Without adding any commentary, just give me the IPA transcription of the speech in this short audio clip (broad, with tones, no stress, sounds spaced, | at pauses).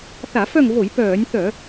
θ a˧˩˧ f œ˦˨ ŋ v o˧˩˧ j p œː˧˩˧ nʲ θ œ˧˩˧